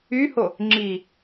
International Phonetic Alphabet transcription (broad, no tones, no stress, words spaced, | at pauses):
yho | ŋ͡ǁi